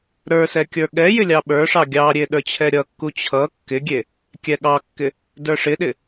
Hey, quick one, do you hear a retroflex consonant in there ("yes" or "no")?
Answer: yes